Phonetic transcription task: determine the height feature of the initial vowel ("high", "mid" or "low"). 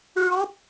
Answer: mid